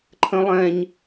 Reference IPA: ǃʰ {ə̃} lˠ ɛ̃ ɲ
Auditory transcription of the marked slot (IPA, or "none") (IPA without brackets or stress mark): ə̃